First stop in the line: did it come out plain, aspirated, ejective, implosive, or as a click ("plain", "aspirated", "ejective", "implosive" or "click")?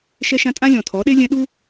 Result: ejective